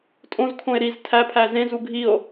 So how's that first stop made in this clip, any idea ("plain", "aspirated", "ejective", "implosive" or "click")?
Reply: ejective